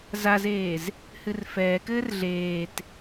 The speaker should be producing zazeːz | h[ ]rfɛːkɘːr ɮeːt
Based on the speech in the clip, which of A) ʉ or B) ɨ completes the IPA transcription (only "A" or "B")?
B